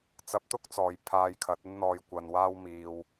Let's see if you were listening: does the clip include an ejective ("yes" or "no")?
no